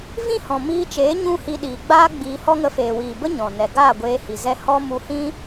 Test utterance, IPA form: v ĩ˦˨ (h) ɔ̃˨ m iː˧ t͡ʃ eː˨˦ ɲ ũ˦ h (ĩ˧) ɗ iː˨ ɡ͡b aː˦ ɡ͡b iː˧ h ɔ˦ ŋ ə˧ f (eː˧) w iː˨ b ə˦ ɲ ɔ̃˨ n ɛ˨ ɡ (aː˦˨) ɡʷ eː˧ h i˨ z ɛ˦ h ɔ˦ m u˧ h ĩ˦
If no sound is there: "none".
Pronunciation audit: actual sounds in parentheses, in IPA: h, i˧, eː˨, aː˦˨

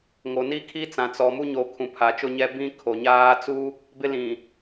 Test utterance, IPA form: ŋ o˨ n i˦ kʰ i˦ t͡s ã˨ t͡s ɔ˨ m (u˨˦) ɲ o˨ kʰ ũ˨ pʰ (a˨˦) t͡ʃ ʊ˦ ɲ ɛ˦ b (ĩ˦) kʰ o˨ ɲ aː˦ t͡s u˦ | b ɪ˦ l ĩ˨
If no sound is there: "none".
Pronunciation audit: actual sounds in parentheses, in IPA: u˦, a˨˦, ĩ˦

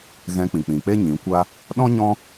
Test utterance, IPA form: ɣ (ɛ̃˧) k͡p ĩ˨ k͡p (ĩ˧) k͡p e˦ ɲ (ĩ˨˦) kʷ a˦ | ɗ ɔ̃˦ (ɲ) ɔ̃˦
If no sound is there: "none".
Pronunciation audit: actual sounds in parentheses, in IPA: ɛ̃˧, ĩ˨, ĩ˨˦, ɲ

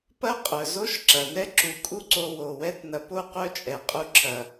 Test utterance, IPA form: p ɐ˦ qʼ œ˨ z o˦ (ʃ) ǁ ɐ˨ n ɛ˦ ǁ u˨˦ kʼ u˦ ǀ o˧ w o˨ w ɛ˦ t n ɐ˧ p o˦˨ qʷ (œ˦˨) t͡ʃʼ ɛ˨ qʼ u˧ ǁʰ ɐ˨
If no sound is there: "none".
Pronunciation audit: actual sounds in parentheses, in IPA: ʃ, œ˦˨

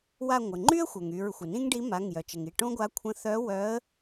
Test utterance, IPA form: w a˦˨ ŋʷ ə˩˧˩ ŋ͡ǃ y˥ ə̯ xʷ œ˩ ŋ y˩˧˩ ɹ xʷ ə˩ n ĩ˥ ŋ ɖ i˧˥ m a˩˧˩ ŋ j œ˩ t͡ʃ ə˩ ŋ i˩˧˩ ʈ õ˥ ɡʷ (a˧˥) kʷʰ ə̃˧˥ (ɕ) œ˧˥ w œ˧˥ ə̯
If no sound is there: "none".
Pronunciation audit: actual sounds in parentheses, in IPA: a˧˥, θ

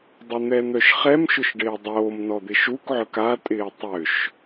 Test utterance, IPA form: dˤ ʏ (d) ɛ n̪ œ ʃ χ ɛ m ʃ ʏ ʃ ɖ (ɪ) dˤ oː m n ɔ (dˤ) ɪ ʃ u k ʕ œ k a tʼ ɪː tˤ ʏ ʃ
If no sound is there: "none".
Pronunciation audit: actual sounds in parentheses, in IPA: n̪, ɪː, d̪

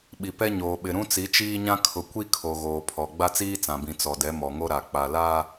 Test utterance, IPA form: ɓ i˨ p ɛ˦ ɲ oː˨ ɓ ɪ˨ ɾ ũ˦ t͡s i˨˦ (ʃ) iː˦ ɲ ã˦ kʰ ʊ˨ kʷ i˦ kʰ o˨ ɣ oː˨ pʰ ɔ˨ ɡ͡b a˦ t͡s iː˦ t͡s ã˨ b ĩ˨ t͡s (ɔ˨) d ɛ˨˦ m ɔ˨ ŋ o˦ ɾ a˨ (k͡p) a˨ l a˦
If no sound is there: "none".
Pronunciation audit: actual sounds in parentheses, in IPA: t͡ʃ, ɔ˨, k͡p

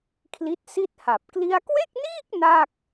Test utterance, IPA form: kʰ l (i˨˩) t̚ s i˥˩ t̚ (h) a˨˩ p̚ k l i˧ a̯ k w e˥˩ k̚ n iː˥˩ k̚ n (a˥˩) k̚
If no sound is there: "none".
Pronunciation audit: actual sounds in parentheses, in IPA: i˦˥, h, a˥˩

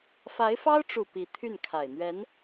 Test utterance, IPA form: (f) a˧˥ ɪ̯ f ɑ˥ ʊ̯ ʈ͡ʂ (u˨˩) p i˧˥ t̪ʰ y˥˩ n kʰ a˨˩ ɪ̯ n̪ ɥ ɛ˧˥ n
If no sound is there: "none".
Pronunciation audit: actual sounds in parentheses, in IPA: f, u˨˩

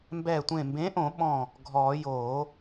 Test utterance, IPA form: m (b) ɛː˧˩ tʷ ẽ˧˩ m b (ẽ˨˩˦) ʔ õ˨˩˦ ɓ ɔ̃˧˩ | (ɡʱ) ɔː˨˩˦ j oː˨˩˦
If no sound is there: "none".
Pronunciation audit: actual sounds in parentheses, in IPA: b, ẽ˨˥, ɡʱ

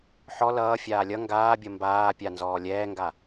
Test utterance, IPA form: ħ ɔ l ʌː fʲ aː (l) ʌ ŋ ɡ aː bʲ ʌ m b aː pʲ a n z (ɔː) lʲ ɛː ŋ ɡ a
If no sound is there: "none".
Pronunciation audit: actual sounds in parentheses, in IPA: lʲ, ɔː

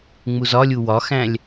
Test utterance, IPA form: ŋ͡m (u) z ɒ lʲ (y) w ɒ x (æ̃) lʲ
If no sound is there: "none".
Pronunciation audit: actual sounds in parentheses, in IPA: u, u, æ̃

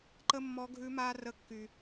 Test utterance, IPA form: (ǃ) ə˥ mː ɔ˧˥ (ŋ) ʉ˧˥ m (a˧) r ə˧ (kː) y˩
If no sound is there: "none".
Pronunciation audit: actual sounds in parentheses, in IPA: ǃ, ɡʱ, a˧, kː

